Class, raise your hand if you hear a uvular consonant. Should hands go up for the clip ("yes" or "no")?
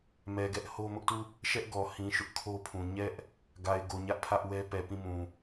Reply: no